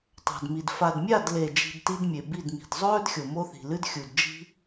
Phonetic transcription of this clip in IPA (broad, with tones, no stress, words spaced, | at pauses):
tˤa̤˨dmi˨d fa˨dmʲa˦˨dle˨d͡ʒi̤˨d ti˦dmʲe˨bi˦˨dmi̤˨d zˤɵː˦dxʲo˨ mo˦θi̤˨lɨ˦dxʲu˨d d͡ʒi̤˦